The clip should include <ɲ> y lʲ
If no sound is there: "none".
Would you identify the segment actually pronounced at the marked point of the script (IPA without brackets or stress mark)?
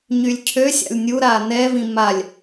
ɲ